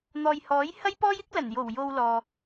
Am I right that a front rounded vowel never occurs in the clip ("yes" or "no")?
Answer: yes